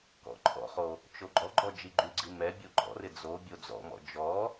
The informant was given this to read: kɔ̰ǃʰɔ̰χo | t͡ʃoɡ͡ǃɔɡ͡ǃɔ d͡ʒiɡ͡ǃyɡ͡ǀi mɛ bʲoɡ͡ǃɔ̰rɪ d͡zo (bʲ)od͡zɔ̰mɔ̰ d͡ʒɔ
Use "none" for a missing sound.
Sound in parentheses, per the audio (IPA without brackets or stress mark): bʲ